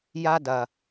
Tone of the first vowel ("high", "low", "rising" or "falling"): high